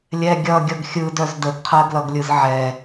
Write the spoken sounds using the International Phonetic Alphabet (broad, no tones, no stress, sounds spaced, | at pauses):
lʲ ɛ ɡʲ ʌ ɡʲ ʌ ɡ xʲ ɯ d œ z d ə ɡ qʰ ɜ ɡ l ʌ ɡ lʲ ɯ z ʕ ɛ